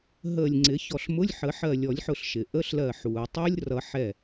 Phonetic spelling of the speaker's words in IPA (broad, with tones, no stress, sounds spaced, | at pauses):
ɦ əː˧˩ lʲ ŋ͡ǀ ɪ˨˩˦ ç ɔ˧˩ ɬ m ʊ˧˥˧ lʲ ħ ə˨˩˦ ħ ɜ˧˩ lʲ ɔ˨˩˦ lʲ ħ ʊ˧˩ ɬ ʃ ɪ˩ ʔ ə˧˥˧ ɬ l ɜ˧˩ ħ uː˩ tˤ əː˦˥ lʲ r ʌ˨˩˦ ħ ɛ˧˩